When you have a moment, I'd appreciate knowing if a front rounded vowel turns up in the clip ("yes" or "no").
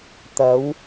no